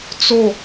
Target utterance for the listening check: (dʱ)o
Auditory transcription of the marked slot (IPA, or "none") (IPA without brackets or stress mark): t͡s